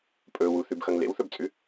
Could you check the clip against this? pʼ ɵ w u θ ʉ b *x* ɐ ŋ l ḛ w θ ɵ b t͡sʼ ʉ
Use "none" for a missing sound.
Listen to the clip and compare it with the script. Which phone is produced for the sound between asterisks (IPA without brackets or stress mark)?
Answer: x